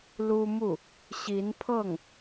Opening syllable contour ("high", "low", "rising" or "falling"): high